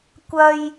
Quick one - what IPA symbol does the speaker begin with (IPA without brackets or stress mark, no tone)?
kʷ